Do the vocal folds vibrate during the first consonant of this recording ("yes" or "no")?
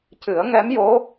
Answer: no